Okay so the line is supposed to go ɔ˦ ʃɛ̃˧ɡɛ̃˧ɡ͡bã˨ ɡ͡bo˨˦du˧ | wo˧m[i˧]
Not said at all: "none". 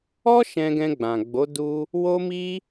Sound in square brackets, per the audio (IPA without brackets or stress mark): i˧